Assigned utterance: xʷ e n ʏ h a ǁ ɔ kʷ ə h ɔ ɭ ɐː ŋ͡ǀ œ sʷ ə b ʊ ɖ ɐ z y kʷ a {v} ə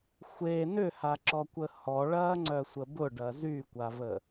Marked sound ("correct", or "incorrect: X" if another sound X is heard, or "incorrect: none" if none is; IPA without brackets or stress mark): correct